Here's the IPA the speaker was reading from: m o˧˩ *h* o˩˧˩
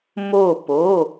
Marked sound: incorrect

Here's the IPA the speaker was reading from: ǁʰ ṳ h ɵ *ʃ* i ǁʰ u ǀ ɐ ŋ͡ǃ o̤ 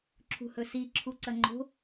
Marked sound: incorrect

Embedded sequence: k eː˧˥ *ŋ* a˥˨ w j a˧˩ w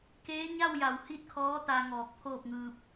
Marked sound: incorrect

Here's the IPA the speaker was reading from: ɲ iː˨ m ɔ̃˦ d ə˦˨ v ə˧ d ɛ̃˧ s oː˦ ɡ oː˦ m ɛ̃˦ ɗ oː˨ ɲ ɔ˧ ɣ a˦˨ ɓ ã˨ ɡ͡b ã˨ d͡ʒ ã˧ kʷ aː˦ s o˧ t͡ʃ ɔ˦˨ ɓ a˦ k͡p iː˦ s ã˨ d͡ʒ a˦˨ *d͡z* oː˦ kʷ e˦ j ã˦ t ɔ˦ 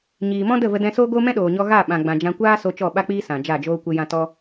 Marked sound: incorrect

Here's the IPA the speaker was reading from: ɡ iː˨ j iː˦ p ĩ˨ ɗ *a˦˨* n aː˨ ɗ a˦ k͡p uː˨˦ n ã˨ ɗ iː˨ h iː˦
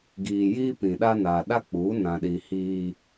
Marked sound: incorrect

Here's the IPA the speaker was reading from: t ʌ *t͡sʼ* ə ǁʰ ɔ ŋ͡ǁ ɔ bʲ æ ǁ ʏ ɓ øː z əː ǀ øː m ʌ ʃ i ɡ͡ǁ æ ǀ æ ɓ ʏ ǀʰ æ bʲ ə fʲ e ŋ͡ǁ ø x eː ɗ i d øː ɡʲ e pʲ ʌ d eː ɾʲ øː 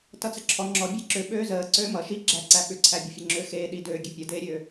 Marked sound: incorrect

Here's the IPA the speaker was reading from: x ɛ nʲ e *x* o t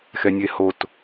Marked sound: incorrect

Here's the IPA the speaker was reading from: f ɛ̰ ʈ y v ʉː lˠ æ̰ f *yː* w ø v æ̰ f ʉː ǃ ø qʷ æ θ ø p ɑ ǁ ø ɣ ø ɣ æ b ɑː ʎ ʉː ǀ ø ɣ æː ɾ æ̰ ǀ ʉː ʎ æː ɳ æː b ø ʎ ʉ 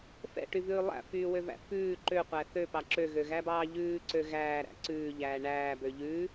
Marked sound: correct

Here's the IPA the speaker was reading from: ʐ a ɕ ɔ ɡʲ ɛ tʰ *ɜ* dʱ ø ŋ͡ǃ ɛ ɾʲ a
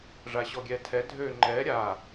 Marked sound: incorrect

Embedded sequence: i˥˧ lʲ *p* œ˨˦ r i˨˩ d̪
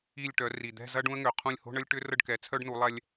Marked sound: incorrect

